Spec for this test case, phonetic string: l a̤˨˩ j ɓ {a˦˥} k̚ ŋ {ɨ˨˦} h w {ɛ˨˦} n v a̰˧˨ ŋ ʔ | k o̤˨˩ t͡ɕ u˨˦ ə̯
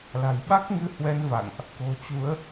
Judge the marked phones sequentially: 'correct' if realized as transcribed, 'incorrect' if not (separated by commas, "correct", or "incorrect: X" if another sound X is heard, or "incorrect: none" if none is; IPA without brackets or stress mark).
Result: correct, correct, correct